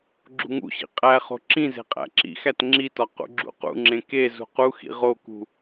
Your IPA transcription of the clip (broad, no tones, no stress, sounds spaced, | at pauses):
ɡ͡ǁ ṳ ŋ ṵ ɕ ḭ qʼ æ χ o̤ ǁ ĩ z e̤ qʼ æ̰ ǁ ḭ x æ t ŋ͡ǁ i t ɒ q ṵ ɡ͡ǁ ṵ q ṵ ŋ͡ǁ ẽ k e z ṳ q u x ḭ ʁ o k ṳ